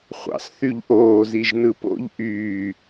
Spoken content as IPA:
χʷ ɑ̰ s θ y ʎ ʔ oː z i ʒ n ɯ p o̰ ʎ ʔ yː

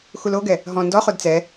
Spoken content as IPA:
x u l o ɡ ɛ | ɦ ɔ̃ n d ɔ χ o d t͡s ɛ

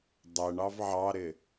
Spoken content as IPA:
dˤ ɛ ɳ ɑ v ʕ ɑ ɾ ɪ

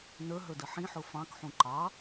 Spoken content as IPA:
n ə˞ ɦ ə˞ d ə ħ ĩ ħ ʊ f ɑ̃ k ħ ũ ǃ ɑ

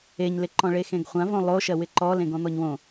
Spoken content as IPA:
e ɲ l ɪ ǃ ɔ̃ ɭ e x ẽ ɡ χʷ ã v õ lˠ o ʃ ɜ w ɪ ǃ ɔ l ẽ ɡ ɔ̃ n̪ ɔ ɲ w õ

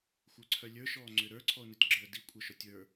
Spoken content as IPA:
xʷ ə˞ ǀʰ œ lʲ ə˞ ʃ ɔː ŋ͡ǀ ʏ ɾ ə˞ ǀʰ ɔ ʊ̯ n u tʲ ɡ͡ǁ əː d i kʷʼ ə˞ ʃ ɔ tʲ ə˞

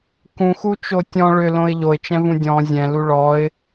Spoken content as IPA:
k ũ x u t͡ʃ o tʲ ɔ̃ ɭ ʏ l õ ɪ̯ ʎ o ɪ̯ t͡ʃ ɛ̃ v ũ dʲ ɔ̃ zʲ ɛ̃ l u ɭ ɔ ɪ̯

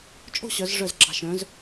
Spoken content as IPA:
t͡ʃʼ o̤˥˧ ɕ œ˩˧ z ʐ œ˧˩ z ɡ͡ǁ ɑ̤˧˩ ʃ œ̃˩˧ z

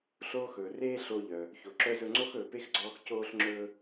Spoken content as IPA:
ɬ oː˥ x ɵː˩ r eː˥ ɬ oː˧ ʎ œ˩ | ç o˩ ǁ œ˧ z ɵ˧ ŋ͡ǀ o˥ x ɵː˩ p e˥ x ɡ͡ǀ ɔː˧ x c oː˧ ɬ ŋ͡ǁ ɵː˧

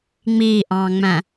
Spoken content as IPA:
ŋ͡m iː ʔ ɑ̃ː ŋ͡m æ̃

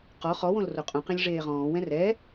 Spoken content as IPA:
q ɔ χ ɔ w õ l r o qʼ ũ q ẽ lʲ ʐ eː ʁ ɔ̃ː w ɛ̃ r ɛ

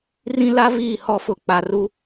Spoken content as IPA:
r ĩ˦ l a˦ v iː˦˨ h ɔ˦ f ʊ˦˨ k͡p a˨ r u˦

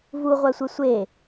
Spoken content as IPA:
v u ʁʷ æ sʷ e sʷ e

